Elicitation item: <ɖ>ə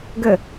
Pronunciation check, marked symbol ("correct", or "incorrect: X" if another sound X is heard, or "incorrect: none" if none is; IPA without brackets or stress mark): incorrect: ɡ